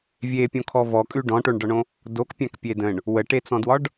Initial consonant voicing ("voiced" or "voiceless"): voiced